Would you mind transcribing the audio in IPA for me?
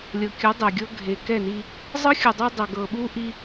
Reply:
lʲ ɤ˨ kʲ ɯ˨˦ dˤ e˨ ɡʲ ɤ˦ ɡʱ e˨ k ɛ˦˨ n i˦ | zˤ ɯ˦ xʲ ɯ˨ dˤ o˦ dˤ ɛ˨ ɡ ɤ˨ ɓ u˦ ʔ i˦

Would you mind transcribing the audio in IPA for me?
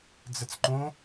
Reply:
d͡z ə t͡s ǃ õ

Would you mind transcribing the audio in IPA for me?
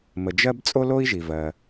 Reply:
m ə˩ d͡ʒ ɜ˥ b t͡sʼ o˥ l o˥ i̯ ʒ i˩ v ɜ˩

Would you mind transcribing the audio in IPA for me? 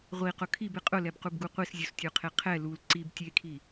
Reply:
ʁʷ i q ʊ kʰ i b ɪ qʼ ʊ l ɛ b q u b ɡ u qʷ i s zʲ u s tʲ ʊː qʰ e qʰ ɛ l u l ǀ i b tʲ e kʰ i

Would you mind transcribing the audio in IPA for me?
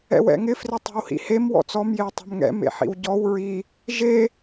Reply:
ɛ̰ w ɛ̰ ŋ ɪ f r ɪ tˤ ɛ̤ w h ḭ h e m w ɔ̰ t͡s ɔ m j e w tˤ ɛ̤ m ŋ ɛ̰ m ḛ ħ ḭ w ɟ ɔ w ɹ i | ʒ e

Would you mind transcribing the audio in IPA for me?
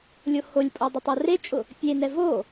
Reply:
lʲ o h o lʲ pʼ o dˤ ʊ tˤ o r e t͡ʃʼ ʊ | pʲ e n ɛ v o

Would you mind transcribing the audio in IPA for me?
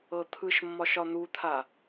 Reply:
ɤ t̪ʰ ɯ ʃ mː ɒ ʃ ɒ n̪ u t̪ʰ a

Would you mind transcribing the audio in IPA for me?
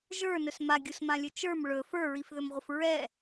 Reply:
ʒ ə˞ n ɵ s m a ɡʲ u s m ã lʲ ɵ t͡ʃ ə˞ m ɭ ɵ f ə˞ ɹ i f ð ɵ m ʁʷ ə f ɹ ɛ

